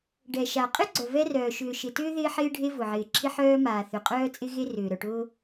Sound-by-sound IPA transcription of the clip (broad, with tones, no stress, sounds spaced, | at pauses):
ɖ ɛ˩ ʃ a˩ qʼ ɪ˥ ɡ͡ǀ œ˩ v ɛ˥ r œː˩ ʃ ʏː˩ ʃ ɪ˩ t ʏː˥ ð ɪː˥ ħ ɪː˥ ɖʱ e˥ v ʊ˩ ʕ ɪː˩ ǁʰ ɪ˥ ħ œː˥ m aː˩ θ ʏ˩ qʼ œː˥ t͡sʼ ɪ˥ ɣ e˥ r ʏː˩ ɾ œ˩ ʈ ʊː˥